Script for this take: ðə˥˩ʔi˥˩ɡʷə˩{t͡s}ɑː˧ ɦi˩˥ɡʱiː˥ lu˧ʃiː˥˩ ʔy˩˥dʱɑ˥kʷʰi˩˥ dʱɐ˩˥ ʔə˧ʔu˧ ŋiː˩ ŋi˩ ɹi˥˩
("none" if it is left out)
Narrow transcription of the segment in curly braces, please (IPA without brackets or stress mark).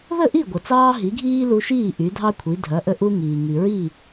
t͡s